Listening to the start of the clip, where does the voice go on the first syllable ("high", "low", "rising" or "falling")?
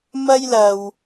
high